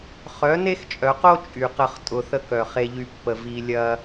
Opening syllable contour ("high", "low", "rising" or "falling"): rising